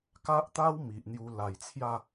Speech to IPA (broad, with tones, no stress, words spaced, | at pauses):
ka˦ʔt̪a˦w mi˨ʔn̪ju˧ la˨˩jt͡sʰja˥˧